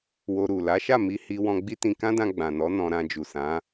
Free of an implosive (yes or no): yes